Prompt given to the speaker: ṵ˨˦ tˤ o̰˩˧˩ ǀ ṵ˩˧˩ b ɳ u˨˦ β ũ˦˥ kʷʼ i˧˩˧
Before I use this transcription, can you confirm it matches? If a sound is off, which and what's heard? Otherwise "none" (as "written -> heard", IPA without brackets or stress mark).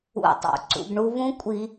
none